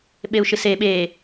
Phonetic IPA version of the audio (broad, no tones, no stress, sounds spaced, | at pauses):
ɓ e u̯ ʃ ɨ s e ɓ e